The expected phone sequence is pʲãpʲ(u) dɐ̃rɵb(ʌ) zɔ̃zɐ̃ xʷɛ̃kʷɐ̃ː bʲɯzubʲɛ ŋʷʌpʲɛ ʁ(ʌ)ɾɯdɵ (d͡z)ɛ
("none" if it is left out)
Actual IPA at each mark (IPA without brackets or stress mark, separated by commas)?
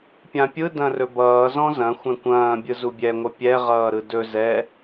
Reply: ɯ, ʌː, ʌː, z